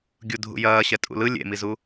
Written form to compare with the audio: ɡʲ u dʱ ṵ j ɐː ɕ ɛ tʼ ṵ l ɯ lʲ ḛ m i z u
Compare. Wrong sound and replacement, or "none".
none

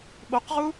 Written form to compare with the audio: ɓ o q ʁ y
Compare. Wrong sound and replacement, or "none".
y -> u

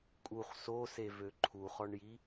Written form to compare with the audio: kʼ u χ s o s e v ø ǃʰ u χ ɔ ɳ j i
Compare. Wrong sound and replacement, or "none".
none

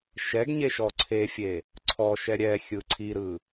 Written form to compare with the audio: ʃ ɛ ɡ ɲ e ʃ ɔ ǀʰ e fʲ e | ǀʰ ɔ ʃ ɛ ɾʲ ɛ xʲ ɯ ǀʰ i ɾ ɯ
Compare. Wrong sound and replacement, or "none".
none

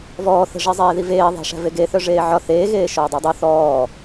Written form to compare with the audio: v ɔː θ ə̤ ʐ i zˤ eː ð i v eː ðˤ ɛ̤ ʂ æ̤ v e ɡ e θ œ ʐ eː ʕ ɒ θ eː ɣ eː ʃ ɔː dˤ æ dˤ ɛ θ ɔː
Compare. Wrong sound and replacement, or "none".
ɛ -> œ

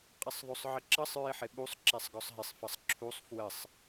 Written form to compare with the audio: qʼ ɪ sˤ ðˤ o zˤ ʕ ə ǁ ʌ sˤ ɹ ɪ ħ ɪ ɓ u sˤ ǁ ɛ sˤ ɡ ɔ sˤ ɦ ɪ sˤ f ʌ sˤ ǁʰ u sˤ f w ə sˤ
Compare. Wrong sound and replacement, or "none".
zˤ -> sˤ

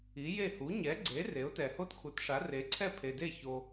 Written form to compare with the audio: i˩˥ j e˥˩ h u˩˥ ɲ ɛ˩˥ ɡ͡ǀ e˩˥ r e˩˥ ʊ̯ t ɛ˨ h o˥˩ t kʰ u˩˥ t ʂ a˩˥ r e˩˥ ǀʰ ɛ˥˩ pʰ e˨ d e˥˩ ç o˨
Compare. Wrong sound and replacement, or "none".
none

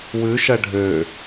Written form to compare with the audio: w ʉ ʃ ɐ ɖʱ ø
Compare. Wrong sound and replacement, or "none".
none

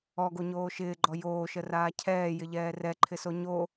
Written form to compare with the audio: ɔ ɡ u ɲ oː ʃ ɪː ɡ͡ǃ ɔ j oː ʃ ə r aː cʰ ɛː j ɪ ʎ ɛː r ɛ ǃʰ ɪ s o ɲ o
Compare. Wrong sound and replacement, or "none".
u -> o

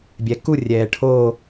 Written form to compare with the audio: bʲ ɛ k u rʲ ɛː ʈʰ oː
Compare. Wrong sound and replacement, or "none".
none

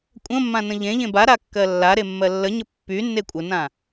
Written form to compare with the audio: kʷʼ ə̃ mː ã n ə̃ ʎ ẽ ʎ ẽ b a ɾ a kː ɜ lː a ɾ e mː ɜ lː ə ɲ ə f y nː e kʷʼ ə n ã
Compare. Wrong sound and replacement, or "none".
f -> pː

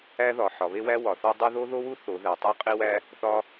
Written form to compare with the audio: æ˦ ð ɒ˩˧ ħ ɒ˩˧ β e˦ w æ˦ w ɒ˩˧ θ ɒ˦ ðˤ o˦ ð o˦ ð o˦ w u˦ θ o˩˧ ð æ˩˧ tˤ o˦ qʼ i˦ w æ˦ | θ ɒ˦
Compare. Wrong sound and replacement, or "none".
ðˤ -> dˤ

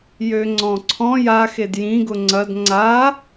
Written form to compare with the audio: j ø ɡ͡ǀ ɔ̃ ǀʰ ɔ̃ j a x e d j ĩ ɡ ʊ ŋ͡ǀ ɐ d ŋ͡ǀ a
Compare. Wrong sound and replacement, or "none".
ɡ͡ǀ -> ŋ͡ǀ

